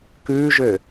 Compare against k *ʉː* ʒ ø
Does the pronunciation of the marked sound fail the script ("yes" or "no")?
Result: no